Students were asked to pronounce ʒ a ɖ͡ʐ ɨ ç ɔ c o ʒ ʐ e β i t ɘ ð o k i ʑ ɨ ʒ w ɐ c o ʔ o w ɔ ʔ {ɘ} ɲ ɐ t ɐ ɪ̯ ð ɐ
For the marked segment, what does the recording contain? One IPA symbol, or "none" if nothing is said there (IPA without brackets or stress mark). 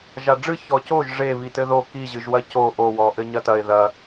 ɘ